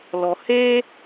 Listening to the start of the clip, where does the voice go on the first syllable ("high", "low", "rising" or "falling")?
low